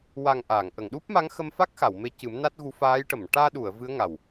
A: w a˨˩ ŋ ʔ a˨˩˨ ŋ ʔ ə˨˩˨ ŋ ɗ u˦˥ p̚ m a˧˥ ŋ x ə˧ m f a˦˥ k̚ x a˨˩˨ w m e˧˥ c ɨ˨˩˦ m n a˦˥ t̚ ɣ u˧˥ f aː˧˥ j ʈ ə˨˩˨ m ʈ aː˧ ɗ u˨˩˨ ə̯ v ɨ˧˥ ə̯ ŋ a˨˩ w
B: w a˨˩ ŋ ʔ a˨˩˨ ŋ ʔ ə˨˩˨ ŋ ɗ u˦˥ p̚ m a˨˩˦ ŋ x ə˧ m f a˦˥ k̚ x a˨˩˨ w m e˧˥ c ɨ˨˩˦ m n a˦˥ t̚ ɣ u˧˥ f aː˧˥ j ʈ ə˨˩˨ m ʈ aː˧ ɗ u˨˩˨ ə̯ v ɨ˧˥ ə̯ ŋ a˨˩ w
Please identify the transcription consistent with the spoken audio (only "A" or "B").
A